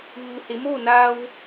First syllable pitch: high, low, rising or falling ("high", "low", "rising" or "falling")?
low